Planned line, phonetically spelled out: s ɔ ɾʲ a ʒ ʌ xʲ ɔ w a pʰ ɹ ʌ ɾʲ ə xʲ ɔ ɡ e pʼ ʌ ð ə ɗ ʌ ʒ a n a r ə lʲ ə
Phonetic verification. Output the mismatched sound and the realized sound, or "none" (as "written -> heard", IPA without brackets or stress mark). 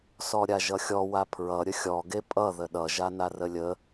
none